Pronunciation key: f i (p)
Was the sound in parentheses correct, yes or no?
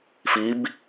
no